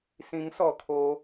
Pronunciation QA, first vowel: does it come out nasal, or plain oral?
nasal